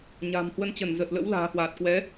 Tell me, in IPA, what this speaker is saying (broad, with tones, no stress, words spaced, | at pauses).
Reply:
ɲa̤ː˨˩mhwə˧nt͡ɕə˧˩n zə˨˩t̚lə̰˧˥w la̤ː˨˩hwaː˨˩t̚kwɛ˨˦